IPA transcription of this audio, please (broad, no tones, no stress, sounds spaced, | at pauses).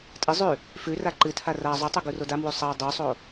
tʼ ɨ zˤ ʉ | f ʉ r a ǃ ɨ tʰ a r a zˤ ʉ tˤ u ɡ u r o d a m w u sˤ a dˤ u sˤ o